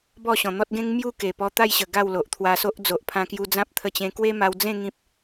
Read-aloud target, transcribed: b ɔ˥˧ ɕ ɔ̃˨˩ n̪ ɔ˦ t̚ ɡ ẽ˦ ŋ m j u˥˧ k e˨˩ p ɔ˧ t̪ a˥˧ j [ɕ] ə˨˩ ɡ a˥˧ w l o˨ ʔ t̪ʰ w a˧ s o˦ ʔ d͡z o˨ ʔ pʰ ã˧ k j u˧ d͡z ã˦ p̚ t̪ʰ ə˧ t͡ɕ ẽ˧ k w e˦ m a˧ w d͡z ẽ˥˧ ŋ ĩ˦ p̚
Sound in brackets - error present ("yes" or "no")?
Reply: no